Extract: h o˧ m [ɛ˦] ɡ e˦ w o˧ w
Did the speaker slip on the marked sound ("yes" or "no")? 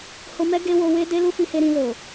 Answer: no